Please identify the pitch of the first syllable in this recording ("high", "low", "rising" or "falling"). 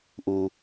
low